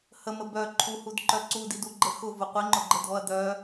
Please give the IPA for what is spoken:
həmə bœ ǃʰuhudǃœ ǀudiduɡ͡ǃə xʊvʊ qʷiŋ͡ǃʊɡ͡ǃədʱɔɐ̯ d̪œ

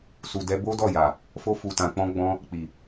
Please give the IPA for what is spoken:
su˨ dɛ˧ bo˦dɔ˦˨ja˨ | fo˧fu˨tã˨k͡pɔ̃˧ ɡ͡bɔ̃˧ | k͡pi˨

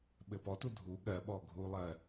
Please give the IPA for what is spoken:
ɓɘpɔtu dʱu ɠɜɓɔ ɡʱulˠɜ

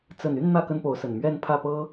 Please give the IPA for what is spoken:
t͡sə˨˩ny˥˨n n̪ä˥˨ kə˦npo˨˦ʊ̯sə˨˩n mɥɛ˥˨npʰä˥˨ pɤ˦

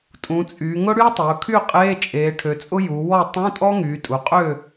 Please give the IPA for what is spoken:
tʼũ˩˧t͡sʼyː˩˧ŋʊ˥ ɽy˥tˤʊː˩˧kʰy˥˨ qʼeː˧˥˧t͡ʃʼeː˩˧ʈʰø˩˧t͡sʼʊ˥ ju˩˧wɔ˥˨ tˤũ˧˥˧ tʼɔ˥ŋyː˩˧tʼu˩˧qʼø˥˨

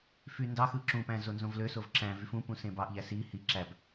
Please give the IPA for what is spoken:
fyndɑxɯ ǁũpæ̃ zonzõvløsov ǁæ̃ vyfũpũ sẽbɑʔʎæ si hi ǁæb

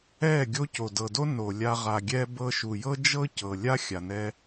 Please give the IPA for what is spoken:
ɛ˦˨ ɡʲo˧ co˨dɤ˨do˦ no˨lʲa˧ ʁa˨ɡʲɛ˧ bɤ˧ʃu˨jɤ˦ d͡ʒɤ˦cɤ˨lʲa˦ xʲa˨ nɛ˦

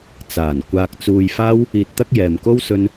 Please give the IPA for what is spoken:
t͡saː˨˩n kʷaː˧k̚t͡suː˧jfaː˥w | iː˧t̚t̪ɐ˥k̚jɛː˨mko˥w sɵ˥n

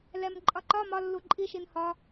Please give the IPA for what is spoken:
lɛmǃʼɒǃɒ mɒ lːuǃʼi ʃinhɒ

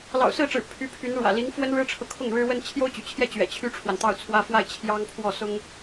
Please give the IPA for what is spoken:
lɑ̰˨˩ʊ̯sɹ̩˥˩ʈ͡ʂɻ̩˨˩ pʰy˧˥pʰy˧˥nɻwä̰˨˩ li˧˥ŋfwə˥nɻɻ̩˥ʈ͡ʂʰɤ˨ kʰʊ˥˩ŋɻɻ̩˥wə˥n t͡ɕʰjo˥ʊ̯t͡ɕy̰˨˩t͡ɕʰjɛ˥˩ t͡ɕɥɛ̰˨˩ t͡ɕʰy˥ʈ͡ʂʰwa˨nt̪ɑ˥˩ʊ̯t͡sʰwä˥ fwa˥˩ɪ̯t͡ɕʰjɑ˥ŋ pʰwɔ˥˩sʊ˥ŋ

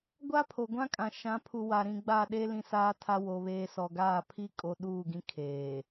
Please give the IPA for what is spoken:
ɡʷa˦pʰo˨ɡʷã˦kʼã˨ ʃã˨˦pʰu˨ wa˨ɾĩ˨ ɡ͡ba˦˨ ɗe˦ lĩ˦saː˦tʰa˦ wo˦βeː˦ sɔ˨ɡaː˦˨pʰi˦ kʼo˨ ɗuː˦˨ɡĩ˦ kʰeː˨

